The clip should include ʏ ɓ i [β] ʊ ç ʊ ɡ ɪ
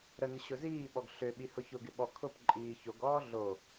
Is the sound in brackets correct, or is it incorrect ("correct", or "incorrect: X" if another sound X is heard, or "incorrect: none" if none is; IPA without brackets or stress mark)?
incorrect: h